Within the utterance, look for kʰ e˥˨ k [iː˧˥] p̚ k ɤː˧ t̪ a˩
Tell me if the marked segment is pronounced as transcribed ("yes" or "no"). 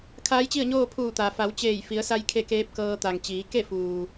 no